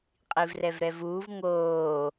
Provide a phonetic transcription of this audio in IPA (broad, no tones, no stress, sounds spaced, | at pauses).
qʼ i v r ɛ v ɾ ɛ v uː v ŋ oː